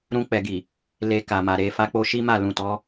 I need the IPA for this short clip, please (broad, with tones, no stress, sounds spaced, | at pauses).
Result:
ɾ ũ˧ k͡p ɛ˨ ɡ i˨ | l e˧ k a˨ m a˨ ɾ e˨ f a˧ k͡p o˧ ʃ i˦ m a˦˨ l ũ˨ t ɔ˨˦